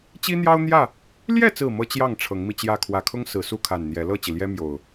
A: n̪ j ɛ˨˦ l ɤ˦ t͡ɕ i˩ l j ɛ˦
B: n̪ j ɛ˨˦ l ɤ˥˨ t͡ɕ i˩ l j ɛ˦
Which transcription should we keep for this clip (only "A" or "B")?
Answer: B